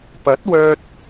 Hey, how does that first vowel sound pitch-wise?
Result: rising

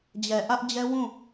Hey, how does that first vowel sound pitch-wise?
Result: low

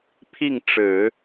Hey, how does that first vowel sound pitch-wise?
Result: falling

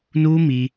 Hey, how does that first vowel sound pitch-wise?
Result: high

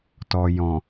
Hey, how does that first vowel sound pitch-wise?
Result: low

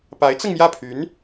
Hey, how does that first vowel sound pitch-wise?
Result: rising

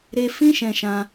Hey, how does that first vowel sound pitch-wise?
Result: high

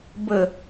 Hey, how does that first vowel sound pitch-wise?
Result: falling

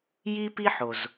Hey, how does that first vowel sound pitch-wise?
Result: high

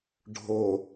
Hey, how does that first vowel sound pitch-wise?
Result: low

